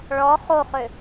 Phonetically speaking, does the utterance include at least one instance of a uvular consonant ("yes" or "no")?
yes